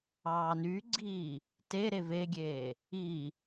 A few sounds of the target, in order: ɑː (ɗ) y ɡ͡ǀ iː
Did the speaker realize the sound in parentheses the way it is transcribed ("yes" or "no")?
no